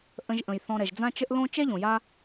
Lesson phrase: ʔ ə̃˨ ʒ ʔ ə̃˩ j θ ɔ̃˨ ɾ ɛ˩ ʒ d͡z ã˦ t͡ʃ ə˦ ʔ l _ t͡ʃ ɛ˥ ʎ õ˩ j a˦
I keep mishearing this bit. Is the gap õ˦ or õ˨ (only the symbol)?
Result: õ˦